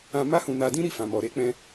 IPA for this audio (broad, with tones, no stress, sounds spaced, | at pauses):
ã˧ m a˦ h ũ˧ n a˧ d ĩ˦ ɾ i˦˨ f ã˨ m ɔ˨ ɾ e˧ k͡p ɛ̃˧